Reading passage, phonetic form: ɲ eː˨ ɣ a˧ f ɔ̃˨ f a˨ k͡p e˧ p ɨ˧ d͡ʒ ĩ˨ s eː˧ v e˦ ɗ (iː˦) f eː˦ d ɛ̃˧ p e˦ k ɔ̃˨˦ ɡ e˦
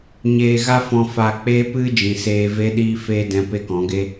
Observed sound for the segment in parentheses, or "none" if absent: iː˦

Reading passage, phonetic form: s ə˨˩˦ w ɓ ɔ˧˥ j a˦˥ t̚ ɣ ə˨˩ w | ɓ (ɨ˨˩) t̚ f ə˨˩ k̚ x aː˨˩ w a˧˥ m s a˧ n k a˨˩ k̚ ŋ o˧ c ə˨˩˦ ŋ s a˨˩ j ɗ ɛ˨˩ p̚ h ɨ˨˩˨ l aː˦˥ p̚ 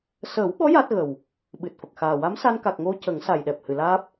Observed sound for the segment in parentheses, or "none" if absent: ɨ˨˩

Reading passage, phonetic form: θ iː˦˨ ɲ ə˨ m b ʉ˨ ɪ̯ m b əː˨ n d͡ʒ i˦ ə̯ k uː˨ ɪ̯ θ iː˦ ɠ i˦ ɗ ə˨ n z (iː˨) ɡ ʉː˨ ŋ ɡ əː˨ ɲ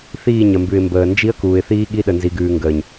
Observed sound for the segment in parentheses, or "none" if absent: i˨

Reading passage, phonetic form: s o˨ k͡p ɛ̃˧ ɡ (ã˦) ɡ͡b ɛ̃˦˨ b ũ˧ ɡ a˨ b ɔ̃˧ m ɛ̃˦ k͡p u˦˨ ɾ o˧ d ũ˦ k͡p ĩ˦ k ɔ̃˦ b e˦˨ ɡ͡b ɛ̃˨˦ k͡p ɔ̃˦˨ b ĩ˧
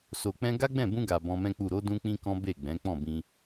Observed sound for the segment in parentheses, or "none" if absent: a˦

